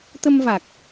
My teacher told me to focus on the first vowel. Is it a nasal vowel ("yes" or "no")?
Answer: no